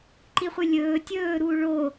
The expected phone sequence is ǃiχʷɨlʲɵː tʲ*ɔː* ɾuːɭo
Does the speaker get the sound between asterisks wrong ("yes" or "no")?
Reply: yes